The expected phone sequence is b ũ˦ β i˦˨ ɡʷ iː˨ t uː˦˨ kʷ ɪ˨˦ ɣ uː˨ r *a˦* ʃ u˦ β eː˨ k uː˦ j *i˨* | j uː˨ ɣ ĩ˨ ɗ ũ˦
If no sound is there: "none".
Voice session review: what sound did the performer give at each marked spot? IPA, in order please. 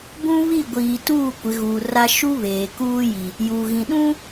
a˦, i˨

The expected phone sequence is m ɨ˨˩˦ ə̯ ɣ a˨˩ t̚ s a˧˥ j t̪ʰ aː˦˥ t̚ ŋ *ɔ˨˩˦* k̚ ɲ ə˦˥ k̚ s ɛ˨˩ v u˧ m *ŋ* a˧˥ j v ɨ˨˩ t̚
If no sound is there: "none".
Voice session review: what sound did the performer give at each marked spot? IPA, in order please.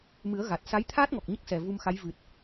ɔ˨˩, x

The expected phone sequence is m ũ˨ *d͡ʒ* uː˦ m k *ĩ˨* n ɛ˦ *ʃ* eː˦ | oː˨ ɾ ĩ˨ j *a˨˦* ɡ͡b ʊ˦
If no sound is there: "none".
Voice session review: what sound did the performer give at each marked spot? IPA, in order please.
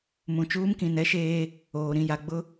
t͡ʃ, ĩ˨, ʃ, a˨

